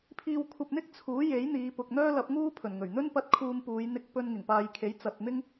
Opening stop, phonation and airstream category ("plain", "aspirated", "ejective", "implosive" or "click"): aspirated